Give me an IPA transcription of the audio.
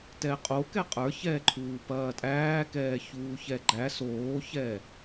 t ɛ qʼ o k ɛ qʼ ə˞ ç ɛː ǃʰ uː p ɐː tʼ æː k ɛː ç uː ç ɛ ɡ͡ǃ æ s oː ç ɛ

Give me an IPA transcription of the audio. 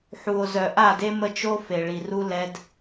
ħ u˨ o̯ z œ˨ ʔ a˦˨ d e˦ m ə˦ t͡ʃ o˦ f e˨ ɭ i˨ r u˦ l ɛ˦ d

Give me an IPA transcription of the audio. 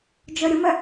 d͡ʒ œ ɾʲ ə m ɛ

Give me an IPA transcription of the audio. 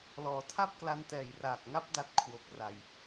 l ɔː˩˦ tʰ a˥˩ p̚ k l a˧ n t ɛː˨˩ j r aː˨˩ k̚ ŋ a˦˥ p̚ d a˦˥ t̚ kʰ w o˨˩ k̚ r a˨˩ j

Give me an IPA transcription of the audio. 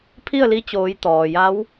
pʰ i˥˨ ə̯ l i˧ t͡ɕ oː˩˧ j t̪ ɔː˩ j a˧˥ w

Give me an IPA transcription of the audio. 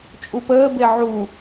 t͡ʃʼ u p əː b e ʕ u

